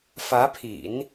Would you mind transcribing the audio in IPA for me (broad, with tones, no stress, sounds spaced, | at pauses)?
f ä˧˥ pʰ ḭ˨˩˦ n